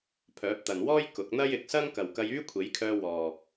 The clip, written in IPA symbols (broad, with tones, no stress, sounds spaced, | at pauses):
pʰ œː˨˥ p̚ t̪ ɐ˨ n w ɔː˥ j k ʊ˨˥ k̚ n̪ ɐ˥ j ɪ˨ k̚ s ɐ˥ ŋ k ɐ˨ w k ɐ˧ j yː˥ kʷʰ e˨˥ j kʰ œː˧ w ɔː˨